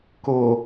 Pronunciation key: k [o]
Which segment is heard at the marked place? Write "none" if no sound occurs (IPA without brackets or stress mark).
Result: o